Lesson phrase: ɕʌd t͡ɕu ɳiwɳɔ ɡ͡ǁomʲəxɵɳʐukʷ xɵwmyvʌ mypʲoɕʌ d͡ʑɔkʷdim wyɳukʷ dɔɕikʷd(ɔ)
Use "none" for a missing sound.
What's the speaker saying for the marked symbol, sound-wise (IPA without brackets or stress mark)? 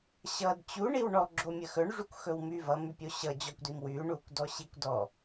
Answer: ɔ